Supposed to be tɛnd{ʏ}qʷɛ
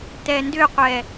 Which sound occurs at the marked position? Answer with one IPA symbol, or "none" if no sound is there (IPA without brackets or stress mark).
ʏ